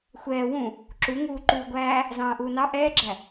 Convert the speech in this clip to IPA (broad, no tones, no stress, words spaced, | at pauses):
xʷɛː wũ | ǁu ŋuːǃuːɡʷæː | zɑ̃ːʔuːnɑ ʔɛːɡ͡ǁæ